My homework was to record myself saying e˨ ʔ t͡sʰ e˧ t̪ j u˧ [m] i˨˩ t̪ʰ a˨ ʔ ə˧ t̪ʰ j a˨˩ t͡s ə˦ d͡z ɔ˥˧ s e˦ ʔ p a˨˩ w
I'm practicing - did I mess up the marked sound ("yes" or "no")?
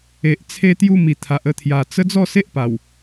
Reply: no